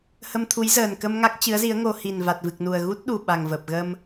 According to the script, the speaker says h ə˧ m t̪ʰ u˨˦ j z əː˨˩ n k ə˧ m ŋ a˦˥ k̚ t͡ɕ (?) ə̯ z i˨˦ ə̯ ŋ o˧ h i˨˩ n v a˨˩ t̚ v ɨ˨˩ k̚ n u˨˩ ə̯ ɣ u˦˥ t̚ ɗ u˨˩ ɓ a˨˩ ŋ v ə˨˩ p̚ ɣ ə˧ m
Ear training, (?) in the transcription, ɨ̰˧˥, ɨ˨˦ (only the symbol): ɨ˨˦